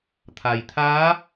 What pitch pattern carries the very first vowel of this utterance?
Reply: low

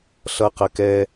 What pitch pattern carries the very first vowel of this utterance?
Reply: high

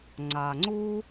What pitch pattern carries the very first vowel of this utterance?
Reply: low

